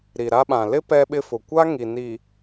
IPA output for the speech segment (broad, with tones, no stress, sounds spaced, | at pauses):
ɾ i˨ ɾ a˦ ɓ ã˨ l ɪ˦ p ɛ˦ ɓ ɪ˦ f ʊ˨ kʷ a˦ ŋ i˨ n i˨